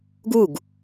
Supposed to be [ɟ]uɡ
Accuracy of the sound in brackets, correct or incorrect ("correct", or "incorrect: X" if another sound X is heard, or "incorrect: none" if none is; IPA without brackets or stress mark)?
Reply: incorrect: ɡ